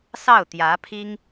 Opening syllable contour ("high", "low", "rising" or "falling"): falling